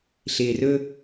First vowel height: high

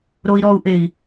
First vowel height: mid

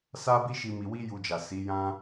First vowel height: low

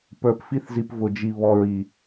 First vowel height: mid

